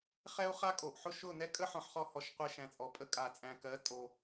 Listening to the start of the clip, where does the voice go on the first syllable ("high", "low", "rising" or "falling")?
high